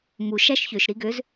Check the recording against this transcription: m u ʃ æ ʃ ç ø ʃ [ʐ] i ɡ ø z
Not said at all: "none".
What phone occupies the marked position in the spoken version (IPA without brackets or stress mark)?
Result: ɾ